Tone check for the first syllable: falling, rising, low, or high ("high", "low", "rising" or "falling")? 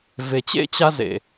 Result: low